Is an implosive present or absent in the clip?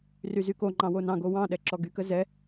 present